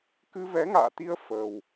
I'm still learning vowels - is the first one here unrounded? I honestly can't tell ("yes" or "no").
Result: yes